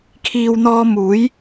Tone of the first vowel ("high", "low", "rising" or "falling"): low